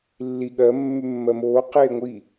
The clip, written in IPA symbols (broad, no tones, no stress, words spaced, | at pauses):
lːi ɠɜ mːʉmːɜmoː qeːŋʷi